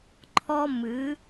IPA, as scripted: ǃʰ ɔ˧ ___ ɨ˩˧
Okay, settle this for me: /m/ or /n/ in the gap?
m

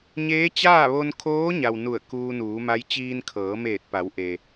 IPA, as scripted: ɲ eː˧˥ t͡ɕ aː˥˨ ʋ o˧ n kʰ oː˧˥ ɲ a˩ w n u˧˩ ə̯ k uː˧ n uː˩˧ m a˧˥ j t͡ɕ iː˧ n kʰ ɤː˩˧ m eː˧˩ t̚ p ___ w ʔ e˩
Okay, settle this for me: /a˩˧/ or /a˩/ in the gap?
a˩˧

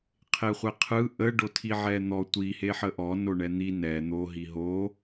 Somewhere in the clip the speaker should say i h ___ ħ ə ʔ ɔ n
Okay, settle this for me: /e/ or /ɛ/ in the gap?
e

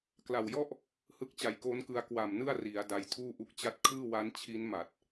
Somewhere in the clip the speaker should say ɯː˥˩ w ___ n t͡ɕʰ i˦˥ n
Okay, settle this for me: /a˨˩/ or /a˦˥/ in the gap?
a˦˥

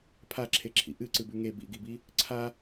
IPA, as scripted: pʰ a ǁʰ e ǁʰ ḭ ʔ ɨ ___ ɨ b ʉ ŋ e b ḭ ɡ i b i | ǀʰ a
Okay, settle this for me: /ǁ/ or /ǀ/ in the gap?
ǀ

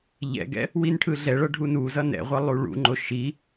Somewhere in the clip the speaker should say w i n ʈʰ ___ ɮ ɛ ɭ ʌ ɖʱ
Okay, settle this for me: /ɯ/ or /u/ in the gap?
ɯ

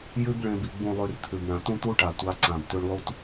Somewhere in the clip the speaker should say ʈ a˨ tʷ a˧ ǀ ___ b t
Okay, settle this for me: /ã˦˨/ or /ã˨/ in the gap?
ã˨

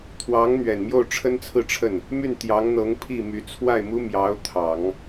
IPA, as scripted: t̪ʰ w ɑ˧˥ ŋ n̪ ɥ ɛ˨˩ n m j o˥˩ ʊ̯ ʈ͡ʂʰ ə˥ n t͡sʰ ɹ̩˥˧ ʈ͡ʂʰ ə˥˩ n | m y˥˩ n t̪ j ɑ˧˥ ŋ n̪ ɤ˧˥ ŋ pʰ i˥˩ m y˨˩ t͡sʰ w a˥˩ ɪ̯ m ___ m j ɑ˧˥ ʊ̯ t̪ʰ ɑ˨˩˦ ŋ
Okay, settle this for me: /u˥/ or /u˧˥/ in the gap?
u˥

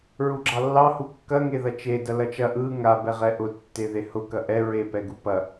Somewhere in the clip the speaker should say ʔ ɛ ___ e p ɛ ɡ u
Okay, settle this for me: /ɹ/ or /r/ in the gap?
ɹ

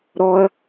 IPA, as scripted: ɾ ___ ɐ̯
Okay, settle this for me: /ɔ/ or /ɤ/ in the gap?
ɔ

